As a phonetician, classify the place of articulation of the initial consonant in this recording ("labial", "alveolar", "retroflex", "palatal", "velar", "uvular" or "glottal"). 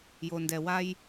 palatal